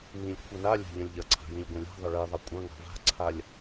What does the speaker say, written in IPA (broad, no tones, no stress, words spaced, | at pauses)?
nĩlʲ kʷʰʌnalʲa̤ ʎɐ̃lʲʎɐǀʰa̤ jĩlʲɡʷɐ̃lʲa̤ðˤə ɭiðˤɐ kʷʼɐ̃ ŋa̤va̤ǀʰalʲ